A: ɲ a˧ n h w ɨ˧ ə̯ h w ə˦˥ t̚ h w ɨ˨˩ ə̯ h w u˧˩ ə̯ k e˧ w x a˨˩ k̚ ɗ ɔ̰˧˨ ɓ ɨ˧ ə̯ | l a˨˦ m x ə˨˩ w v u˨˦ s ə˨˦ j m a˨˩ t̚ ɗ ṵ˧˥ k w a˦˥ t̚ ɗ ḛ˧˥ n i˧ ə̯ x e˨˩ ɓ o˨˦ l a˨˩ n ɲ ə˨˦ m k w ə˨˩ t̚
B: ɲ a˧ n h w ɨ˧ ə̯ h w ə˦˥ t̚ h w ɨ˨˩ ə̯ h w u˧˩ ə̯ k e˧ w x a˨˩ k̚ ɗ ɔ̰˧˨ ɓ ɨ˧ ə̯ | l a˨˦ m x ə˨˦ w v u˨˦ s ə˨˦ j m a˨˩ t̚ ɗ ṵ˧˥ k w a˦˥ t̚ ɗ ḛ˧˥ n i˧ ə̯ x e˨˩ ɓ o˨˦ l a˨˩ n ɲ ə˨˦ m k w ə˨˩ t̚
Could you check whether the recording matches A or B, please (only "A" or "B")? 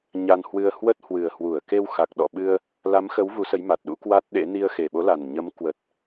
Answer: B